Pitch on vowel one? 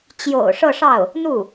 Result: low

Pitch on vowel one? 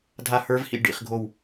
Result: falling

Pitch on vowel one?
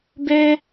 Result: high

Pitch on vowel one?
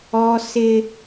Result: high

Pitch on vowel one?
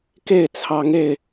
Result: falling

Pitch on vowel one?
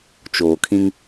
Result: low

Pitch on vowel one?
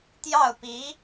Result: falling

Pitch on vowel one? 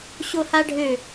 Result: high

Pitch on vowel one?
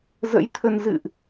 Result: rising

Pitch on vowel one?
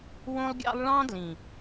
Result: high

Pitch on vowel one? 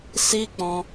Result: high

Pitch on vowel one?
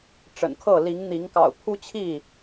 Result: low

